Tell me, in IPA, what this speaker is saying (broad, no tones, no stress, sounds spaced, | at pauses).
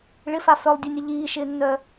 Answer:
ɭ ɪ f a f œ lˠ dʲ ɛ nʲ ə ʎ iː ʃ ɪː nː œ